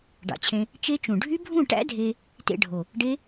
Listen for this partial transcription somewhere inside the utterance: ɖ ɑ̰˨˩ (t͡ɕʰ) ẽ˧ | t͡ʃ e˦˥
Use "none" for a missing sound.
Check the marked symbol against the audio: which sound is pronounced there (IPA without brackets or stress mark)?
t͡ɕʰ